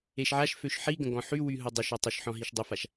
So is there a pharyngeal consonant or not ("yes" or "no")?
yes